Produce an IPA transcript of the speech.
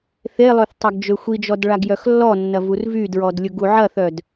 θ e lˠ ø θ tˤ ɐ ɡ d͡ʒ ø xʷ i d͡ʒ ɔ d ɭ a ɡ j œ x lː ɔ nː ɐ v u r v y d ɹ ɔ d lʲ ʊ ɡ u ʕ ɐ θ œ d

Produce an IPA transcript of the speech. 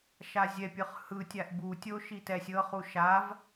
ʃ a zʲ ɛ pʲ ɯ χ h ɯ tʲ a ʔ b u tʲ o ʃ i t ɛ sʲ ɤ χ u ʃ a v

